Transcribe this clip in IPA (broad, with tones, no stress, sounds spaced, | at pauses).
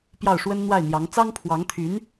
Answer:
p j ɑ˥˩ ʊ̯ ʂ w ə˥ n n̪ w a˥˩ ɪ̯ n̪ j ɑ˧˥ ŋ t͡s ɑ˥ ŋ pʰ w ɑ˧˥ ŋ t̪ʰ y˧˥ n